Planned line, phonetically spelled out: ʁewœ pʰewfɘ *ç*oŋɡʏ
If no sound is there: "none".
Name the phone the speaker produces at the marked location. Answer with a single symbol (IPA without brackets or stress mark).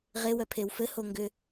h